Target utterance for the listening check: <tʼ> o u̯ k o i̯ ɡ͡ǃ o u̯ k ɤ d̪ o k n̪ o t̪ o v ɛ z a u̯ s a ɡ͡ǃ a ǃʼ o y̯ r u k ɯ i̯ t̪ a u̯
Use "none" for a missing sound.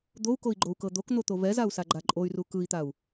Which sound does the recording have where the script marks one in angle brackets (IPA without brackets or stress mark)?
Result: d̪